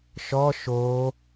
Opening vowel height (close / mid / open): mid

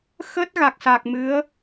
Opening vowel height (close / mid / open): mid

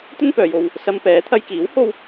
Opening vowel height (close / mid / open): mid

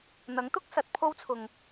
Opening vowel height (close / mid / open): open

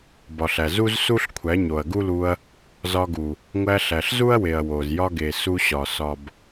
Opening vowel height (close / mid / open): open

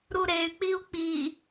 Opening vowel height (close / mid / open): close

